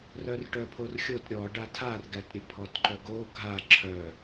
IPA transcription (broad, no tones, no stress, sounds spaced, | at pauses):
r œ r ʈ œ pʰ o r xʲ o t ɾʲ ɔ ɖ a tʰ a r ɡ æ t ɾʲ ɘ pʰ ɔ t ǃ œ ɡ o ɡʱ a ǁʰ œ